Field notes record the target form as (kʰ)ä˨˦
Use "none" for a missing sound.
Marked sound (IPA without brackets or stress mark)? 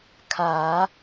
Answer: kʰ